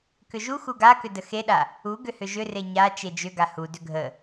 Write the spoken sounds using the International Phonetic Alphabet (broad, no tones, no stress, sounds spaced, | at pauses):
k ʏ ʒ u x u ɡ a k ʏ d ə x e ɗ a | u ɡ ʏ h ʏ ʒ ʏ r e ɲ a t͡ʃ e d͡ʒ ʏ ɡ a h u d ʏ ɡʱ ə